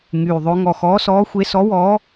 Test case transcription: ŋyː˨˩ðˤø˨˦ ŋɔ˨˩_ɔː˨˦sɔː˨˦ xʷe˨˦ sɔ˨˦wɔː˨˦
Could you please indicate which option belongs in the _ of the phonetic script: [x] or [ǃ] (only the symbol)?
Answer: x